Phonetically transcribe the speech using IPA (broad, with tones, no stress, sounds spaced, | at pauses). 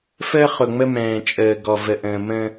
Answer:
f əː˦ χ ʊ˨ ŋ͡m ə˦ m ɛ̃ː˨ t͡ʃʼ əː˨ ɡ ɔ˨ v ə˨ ʔ ə̃ː˨ m ə̃ː˦